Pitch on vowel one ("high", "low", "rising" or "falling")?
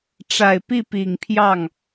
low